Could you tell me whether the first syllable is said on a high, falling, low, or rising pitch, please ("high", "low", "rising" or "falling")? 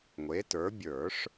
rising